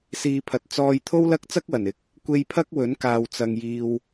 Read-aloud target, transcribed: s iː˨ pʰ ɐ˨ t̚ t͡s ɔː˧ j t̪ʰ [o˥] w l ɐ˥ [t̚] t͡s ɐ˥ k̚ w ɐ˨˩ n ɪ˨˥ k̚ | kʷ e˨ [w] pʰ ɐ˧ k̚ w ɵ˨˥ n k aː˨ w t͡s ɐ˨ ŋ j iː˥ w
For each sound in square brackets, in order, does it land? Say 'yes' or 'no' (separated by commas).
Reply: yes, no, no